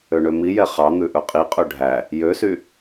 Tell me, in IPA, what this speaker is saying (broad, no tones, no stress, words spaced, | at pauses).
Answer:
øɳømijɛ χɑ n̪ʉʔɵqʼiqʼɵ ɖʱæ | jøsy